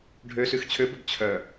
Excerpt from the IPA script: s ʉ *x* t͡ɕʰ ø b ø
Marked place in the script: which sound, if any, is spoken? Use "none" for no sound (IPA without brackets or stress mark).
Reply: x